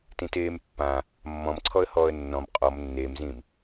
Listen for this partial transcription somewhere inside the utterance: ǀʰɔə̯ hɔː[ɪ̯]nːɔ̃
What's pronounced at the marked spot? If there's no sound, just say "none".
ə̯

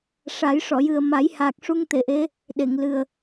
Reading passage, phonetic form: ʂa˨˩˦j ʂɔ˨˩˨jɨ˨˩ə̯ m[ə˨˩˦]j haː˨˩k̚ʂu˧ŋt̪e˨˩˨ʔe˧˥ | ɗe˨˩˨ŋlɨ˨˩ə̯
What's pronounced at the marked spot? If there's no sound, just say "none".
a˨˩˦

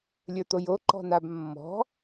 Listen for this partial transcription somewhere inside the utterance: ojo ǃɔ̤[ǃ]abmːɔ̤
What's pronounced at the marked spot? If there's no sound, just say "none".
n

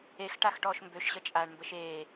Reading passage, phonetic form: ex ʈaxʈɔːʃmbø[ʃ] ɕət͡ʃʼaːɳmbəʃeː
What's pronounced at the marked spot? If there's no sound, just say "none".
ʃ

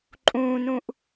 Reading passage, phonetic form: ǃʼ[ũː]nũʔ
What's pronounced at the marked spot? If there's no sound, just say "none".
ũː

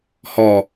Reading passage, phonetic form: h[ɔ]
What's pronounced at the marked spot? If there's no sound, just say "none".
ɔ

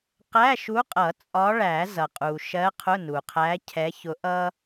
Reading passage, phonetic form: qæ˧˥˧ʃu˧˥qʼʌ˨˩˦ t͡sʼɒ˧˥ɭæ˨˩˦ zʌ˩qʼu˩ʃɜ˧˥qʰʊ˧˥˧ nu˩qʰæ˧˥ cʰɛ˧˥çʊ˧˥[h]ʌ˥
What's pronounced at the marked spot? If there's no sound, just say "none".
ʔ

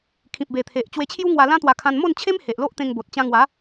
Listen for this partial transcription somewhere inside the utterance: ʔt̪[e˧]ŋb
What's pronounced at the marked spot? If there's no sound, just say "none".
ẽ˧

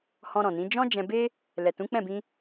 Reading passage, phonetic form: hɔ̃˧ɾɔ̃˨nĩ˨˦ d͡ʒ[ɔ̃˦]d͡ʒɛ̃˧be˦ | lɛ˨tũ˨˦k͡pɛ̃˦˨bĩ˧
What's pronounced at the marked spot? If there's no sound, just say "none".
ɔ̃˦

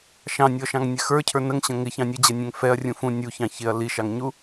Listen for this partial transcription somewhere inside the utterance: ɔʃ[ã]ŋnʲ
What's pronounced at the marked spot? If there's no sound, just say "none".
ɑ̃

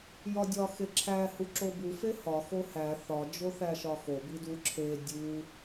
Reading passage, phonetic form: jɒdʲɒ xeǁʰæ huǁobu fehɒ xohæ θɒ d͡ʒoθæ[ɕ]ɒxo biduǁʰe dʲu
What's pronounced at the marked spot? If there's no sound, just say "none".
ʃ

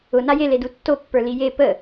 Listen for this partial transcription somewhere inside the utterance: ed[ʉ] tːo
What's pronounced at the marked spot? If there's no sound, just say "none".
u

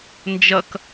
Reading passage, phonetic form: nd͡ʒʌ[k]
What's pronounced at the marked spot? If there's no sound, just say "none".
k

